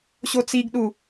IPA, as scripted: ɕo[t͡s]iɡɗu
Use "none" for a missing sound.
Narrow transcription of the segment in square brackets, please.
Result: t͡s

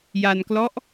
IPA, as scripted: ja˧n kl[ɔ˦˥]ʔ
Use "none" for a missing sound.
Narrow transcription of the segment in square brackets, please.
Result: ɔ˦˥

